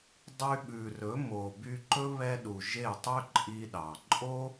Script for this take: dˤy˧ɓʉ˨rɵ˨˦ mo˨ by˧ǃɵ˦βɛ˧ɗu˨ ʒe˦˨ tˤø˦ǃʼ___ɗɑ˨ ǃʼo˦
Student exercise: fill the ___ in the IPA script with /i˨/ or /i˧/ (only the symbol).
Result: i˧